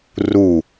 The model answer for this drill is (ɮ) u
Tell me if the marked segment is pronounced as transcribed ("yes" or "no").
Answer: no